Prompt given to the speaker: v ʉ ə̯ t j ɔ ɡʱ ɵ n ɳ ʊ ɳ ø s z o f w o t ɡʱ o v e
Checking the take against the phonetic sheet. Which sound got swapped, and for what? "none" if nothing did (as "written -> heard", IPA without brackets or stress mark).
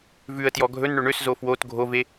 ʊ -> ɵ